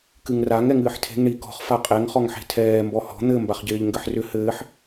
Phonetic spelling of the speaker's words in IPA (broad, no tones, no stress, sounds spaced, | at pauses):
k ɨ ŋ r a ŋ ɛ ŋ ɨː ħ tʰ e̤ ŋ ɳ i k ɔ̤ χ f a qʼ ɛ ŋ χ ɔ ŋ ħ e̤ tʰ ɛː m b ɔ h ɔ̤ n̪ ɘ m b a χ ɟ ɪː ʎ ŋ ɡ ɘ ħ r ʏ h ɘː ħ